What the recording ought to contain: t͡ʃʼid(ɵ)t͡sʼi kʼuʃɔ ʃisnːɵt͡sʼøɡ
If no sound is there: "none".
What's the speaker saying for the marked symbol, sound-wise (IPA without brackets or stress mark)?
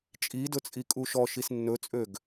ɵ